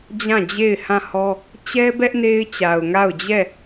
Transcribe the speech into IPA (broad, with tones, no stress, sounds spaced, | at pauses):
d͡ʑ ã˦˨ d͡ʑ e˦˨ ɪ̯ h ã˦˨ h ɔ˦ | t͡ɕ ɛ˦ b ɛ˦ ʔ n e˦ ɪ̯ t͡ɕ a˨ ʊ̯ ŋ a˦˨ ʊ̯ d͡ʑ ɛ˦˨